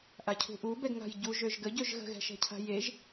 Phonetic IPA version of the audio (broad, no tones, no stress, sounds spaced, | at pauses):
ʔ a cʰ ṳ ʔ u b ɛ ɡ ŋ a̤ j ɟ u ʒ ø ʒ ɡ ə ɟ ø ʒ ɣ ə̤ ɣ ɛ̤ ʃ ɛ̤ cʰ a̤ j e ʒ